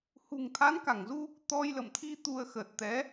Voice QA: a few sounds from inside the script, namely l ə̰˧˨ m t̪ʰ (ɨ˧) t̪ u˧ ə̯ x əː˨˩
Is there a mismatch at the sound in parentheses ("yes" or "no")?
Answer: yes